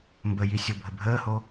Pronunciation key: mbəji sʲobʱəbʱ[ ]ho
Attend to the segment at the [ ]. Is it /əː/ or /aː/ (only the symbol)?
əː